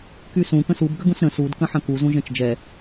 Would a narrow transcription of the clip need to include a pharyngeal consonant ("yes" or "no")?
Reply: yes